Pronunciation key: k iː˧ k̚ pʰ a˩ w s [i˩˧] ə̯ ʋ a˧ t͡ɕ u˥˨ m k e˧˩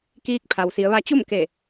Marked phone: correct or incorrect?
correct